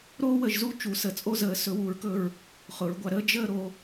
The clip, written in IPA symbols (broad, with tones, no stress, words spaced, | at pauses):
ɾoː˥wə˧ʒzu˥˧ t͡ʃu˩˧sə˩˧t͡sʼo˥˧zəː˩˧ sɵ˩˧wuː˩˧ɹkɵ˧˩ɹ | χʊ˩˧ɹɡʷa˧ɾəː˥ d͡ʒəː˥˧ ɾo˩˧